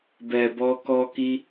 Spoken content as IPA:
b ɛ˨ b ɔ˧ k ɔ˧ k i˦

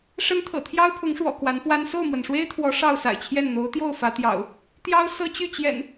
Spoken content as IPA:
ʂ ə˦ n t̪ʰ ɤ̰˨˩ t̪ʰ j ɑ˦ ʊ̯ pʰ ʊ˨˦ ŋ ʂ w ɔ̰˨˩ k w a˨˦ n f w a˦ n s o˥˨ ʊ̯ m w ə˩ n ʂ w e˦ ɪ̯ t̪ʰ w ɔ˨˦ ʂ ɑ˥˨ ʊ̯ s a̰˨˩ ɪ̯ t͡ɕʰ j ɛ˥˨ n n̪ o˨˦ ʊ̯ t̪ j o˥˨ ʊ̯ f ä˨˦ t̪ j ɑ̰˨˩ ʊ̯ | t̪ j ɑ˦ ʊ̯ s ɤ˦ t͡ɕ y˥˨ t͡ɕ j ɛ̰˨˩ n

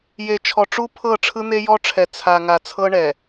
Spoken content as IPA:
j e˨ t͡ʃʰ ɔ˨ ʈ͡ʂ u˦ pʰ ɤ˦˨ ʈ͡ʂʰ ɯ˦ n̪ e˦ j ɔ˦ ʈ͡ʂʰ ɛ˨ t͡sʰ a˨ ŋ a˨ t͡sʰ ɤ˦ ɳ ɛ˨

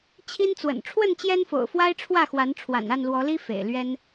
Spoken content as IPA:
t͡ɕʰ i˦ n t͡s w ə̰˨˩ n ʈ͡ʂʰ w ə˥˨ n t͡ɕ j ɛ˦ n f o̰˨˩ ʊ̯ f w a˦ ɪ̯ ʈ͡ʂʰ w ä˥˨ x w a˨˦ n ʈ͡ʂʰ w a̰˨˩ n a˥˨ n l w ɔ˨˦ l i˦ f ḛ˨˩ ɪ̯ l ɥ ɛ˦ n

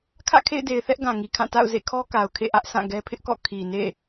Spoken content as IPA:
kʰ ä̰˦˨ kʰ ḛ˦˨ ɪ̯ d e˨ ɪ̯ θ ɛ˦ ʔ ɡ ã˨ ŋ i˨ kʰ ã˦˨ t a̰˦˨ ʊ̯ z ḛ˦˨ kʰ ɔ˦ k a˨ ʊ̯ kʰ ḛ˦˨ ʔ ä˦ ʔ s ã˦˨ ɡ ɛ˦ pʰ ɪ˦ ʔ k ɔ̰˦˨ kʰ i˨ n ḛ˦˨

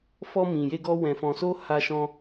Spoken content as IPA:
f ɔ˧ m ĩ˨ j e˧ ɡ ɔ˧ w ɛ̃˨ f ɔ̃˨ s o˧ h a˧ ʃ ɔ̃˧

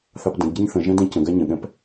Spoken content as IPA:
θ ɑ p d ə̃ d ɟ i ɲ θ ə̃ ʒ ɛ̃ d ɛ̃ c ə̃ ɡ a ɲ ə̃ ɠ ɛ̃ p

